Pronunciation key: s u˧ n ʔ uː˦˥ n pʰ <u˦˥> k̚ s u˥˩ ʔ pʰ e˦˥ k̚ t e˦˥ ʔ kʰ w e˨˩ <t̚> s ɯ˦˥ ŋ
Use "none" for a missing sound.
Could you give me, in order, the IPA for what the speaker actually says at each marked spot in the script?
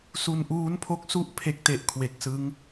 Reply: o˦˥, k̚

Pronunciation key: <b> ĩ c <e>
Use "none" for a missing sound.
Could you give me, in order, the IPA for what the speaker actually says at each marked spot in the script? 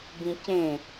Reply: b, ẽ

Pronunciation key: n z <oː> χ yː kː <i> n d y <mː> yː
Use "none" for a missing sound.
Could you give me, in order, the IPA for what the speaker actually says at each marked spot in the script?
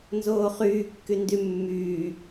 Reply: oː, y, mː

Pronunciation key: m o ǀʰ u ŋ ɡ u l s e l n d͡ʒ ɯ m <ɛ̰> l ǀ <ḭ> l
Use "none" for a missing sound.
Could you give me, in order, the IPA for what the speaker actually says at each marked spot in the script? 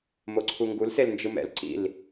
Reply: ɛ̰, ḭ

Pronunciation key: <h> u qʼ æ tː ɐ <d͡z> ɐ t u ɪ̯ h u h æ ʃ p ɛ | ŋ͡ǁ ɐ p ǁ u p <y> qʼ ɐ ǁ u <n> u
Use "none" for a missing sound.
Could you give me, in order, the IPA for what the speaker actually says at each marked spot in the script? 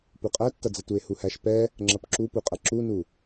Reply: p, d͡z, u, n

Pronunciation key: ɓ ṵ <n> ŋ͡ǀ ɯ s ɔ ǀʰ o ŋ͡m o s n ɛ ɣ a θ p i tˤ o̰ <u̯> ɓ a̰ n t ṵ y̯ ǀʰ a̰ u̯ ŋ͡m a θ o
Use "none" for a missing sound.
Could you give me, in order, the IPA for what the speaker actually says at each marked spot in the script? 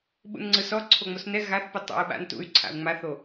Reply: n, u̯

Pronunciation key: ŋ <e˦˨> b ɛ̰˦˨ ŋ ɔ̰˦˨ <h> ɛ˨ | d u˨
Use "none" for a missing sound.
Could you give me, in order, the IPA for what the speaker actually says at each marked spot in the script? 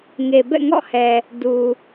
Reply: e˨, h

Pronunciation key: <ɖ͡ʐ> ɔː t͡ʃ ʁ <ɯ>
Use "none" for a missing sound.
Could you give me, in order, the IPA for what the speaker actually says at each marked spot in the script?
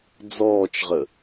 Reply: d͡z, ə

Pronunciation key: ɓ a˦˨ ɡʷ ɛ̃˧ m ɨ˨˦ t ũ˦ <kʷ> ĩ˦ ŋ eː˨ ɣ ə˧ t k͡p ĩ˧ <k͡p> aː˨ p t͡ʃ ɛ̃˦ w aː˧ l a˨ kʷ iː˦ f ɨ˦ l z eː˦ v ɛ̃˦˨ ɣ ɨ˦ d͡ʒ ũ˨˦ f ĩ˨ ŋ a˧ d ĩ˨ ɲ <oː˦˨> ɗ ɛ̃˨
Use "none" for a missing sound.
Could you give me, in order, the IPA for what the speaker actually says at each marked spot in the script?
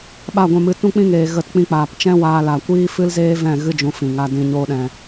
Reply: k͡p, k͡p, oː˧

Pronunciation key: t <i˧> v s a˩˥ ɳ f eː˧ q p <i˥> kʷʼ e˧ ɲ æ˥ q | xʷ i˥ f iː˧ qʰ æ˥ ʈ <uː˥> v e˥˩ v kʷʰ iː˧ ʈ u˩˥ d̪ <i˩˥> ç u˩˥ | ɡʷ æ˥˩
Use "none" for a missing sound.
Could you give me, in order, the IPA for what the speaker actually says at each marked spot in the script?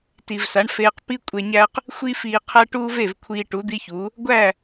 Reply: i˩, i˥, uː˥, i˥

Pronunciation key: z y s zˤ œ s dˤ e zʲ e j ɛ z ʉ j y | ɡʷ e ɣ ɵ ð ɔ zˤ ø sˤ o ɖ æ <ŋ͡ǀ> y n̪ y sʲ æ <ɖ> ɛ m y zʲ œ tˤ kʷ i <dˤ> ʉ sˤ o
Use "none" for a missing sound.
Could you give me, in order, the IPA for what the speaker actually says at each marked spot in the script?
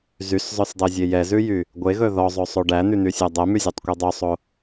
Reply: n̪, dˤ, dˤ

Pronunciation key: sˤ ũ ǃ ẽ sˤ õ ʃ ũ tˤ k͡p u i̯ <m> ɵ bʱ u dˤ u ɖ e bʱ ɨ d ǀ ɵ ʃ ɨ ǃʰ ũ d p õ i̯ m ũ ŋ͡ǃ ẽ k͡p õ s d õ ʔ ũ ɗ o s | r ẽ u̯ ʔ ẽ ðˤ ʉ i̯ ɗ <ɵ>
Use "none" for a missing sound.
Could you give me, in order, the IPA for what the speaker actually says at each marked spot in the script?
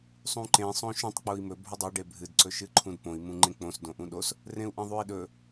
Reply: m, ɵ

